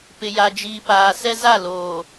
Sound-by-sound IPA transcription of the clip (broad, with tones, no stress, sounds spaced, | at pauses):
p ɪ˨ j a˨ d͡ʒ iː˨ p aː˨ s ɛ˦ z a˦˨ l oː˨